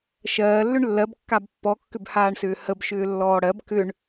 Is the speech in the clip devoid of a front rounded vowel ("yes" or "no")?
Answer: no